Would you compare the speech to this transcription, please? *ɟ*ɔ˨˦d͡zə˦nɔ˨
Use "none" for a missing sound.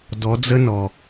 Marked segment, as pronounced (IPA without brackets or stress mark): d